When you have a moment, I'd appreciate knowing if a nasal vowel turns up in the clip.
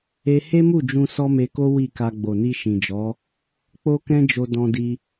yes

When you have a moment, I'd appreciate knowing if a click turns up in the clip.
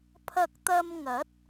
no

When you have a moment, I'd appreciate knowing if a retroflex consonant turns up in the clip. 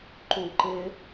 no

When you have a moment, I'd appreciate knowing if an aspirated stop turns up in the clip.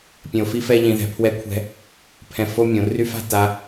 yes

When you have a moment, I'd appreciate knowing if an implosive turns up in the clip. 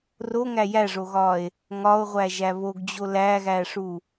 no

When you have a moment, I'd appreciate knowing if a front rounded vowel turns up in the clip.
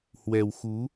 no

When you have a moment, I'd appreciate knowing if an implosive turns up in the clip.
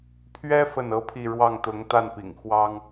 no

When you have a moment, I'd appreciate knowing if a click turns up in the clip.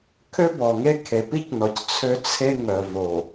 no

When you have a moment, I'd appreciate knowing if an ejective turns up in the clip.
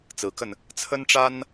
no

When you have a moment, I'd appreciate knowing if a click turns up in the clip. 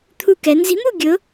no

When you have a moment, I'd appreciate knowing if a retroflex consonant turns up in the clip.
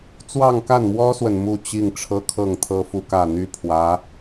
yes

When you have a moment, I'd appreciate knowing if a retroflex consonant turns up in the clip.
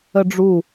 yes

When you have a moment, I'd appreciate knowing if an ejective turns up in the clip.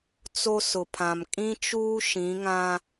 yes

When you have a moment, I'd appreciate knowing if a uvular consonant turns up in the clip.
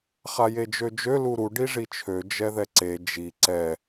yes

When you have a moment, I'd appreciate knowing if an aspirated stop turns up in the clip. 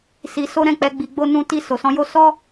no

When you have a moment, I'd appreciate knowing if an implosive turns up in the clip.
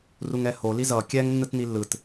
no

